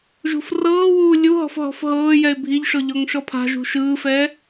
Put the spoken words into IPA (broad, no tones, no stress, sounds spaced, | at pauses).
ʒ ṳ f r ɤː w uː lʲ u ɦ ɔ̤ f ɦ ɔ̤ f ɦ ɤː j ɛ ɪ̯ bʱ i ʎ ʃ ɔ ʎ ɔ ŋ ʃ ɔ pʰ a̤ ʒ ṳ ʃ ɯː f ɛː